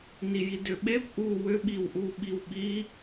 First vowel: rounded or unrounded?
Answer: unrounded